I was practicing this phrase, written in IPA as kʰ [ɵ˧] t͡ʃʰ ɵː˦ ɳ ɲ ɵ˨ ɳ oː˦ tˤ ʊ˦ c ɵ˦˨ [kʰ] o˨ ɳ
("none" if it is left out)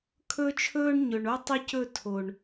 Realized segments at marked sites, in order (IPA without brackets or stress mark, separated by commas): ɵ˦, tʰ